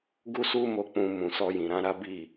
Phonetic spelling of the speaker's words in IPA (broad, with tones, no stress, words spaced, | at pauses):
ɡu˦su˦mo˧ k͡pũ˧ mũ˨sɔ˧jĩ˨ ɾã˧ ɾa˦bi˦˨